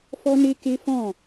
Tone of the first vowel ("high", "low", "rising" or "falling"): high